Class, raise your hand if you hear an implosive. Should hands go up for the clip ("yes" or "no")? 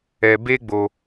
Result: no